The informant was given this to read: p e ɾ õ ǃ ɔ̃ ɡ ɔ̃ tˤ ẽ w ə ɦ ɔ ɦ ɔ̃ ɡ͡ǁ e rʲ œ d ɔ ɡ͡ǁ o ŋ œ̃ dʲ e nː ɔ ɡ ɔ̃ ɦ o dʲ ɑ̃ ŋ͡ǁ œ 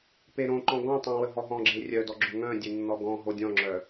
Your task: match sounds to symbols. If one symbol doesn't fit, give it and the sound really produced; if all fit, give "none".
ɑ̃ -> ɔ̃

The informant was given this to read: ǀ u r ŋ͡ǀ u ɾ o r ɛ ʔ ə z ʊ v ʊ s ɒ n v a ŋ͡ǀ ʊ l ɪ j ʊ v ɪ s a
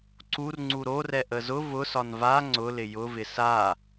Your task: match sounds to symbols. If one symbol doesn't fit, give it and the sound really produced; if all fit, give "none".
none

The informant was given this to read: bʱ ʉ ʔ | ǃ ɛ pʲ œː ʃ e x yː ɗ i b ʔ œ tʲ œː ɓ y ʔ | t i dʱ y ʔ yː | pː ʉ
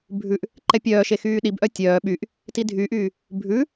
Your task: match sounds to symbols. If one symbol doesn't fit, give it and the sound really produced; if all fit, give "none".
pː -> bʱ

